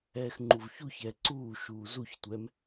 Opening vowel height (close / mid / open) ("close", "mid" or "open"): mid